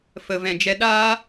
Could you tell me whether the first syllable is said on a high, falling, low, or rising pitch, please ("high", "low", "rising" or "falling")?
low